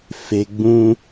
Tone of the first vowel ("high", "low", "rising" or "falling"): low